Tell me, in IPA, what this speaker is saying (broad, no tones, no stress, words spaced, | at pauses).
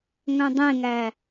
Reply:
ŋœ̃dˤẽŋæ